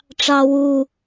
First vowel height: low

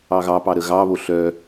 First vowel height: low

